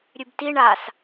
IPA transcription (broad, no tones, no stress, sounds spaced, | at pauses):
ɾʲ ʉ b t i ɳ a s